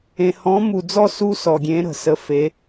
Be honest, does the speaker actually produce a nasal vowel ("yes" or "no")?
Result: yes